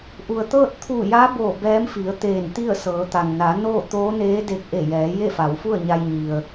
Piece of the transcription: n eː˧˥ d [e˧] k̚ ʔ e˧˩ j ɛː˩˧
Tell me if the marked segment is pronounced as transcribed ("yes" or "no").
yes